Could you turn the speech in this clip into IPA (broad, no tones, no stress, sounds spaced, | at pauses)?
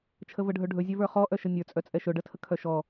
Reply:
t͡ʃʰ ə v ə ɖʱ ɵ ɖʱ ɵ zʲ œ v ə˞ χ ɔ ʔ œ ʃ ə nʲ ə˞ t͡sʼ œ t͡sʼ ɛ ʃ ɵ ɖ ə tʰ ə kʰ œ ʃ ɔ